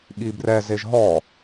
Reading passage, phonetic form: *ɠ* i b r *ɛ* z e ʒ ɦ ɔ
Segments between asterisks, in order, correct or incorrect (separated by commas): correct, correct